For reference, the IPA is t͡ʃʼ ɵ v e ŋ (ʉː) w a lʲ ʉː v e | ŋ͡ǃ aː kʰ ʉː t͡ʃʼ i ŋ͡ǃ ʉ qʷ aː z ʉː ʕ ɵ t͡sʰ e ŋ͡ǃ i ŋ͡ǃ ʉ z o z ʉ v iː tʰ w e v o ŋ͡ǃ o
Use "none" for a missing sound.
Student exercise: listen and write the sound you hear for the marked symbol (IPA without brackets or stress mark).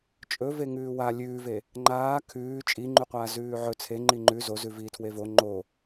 ʉː